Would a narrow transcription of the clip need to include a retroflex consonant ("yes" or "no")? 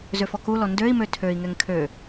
no